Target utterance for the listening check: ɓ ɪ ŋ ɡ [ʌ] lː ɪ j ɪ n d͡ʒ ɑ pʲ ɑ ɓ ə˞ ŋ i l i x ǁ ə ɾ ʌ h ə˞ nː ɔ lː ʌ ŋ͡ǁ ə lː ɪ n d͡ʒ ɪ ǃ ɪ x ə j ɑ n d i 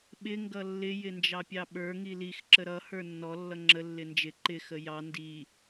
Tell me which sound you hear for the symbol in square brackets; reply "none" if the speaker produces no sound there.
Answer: ʌ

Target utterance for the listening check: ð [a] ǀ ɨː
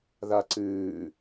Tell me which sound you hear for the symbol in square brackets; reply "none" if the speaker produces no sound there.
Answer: a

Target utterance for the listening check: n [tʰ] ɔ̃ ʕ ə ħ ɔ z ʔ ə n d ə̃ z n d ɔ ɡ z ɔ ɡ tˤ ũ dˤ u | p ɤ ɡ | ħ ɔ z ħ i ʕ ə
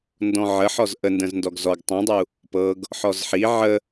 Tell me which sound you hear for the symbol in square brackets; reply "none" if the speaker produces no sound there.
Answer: d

